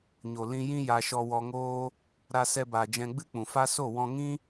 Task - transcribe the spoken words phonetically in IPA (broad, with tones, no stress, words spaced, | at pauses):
ɲo˨ lĩ˧jĩ˦ ja˧ʃɔ˧ wɔ˧ ŋoː˦ | ɾa˧sɛ˧baː˨ d͡ʒɛ̃˧ɡ͡bɨ˦k͡pũ˨fa˦ so˦˨wɔ̃˧ŋĩ˦